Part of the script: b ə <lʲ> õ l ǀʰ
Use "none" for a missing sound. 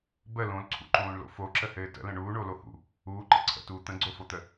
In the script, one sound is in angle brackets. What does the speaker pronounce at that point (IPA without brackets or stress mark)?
l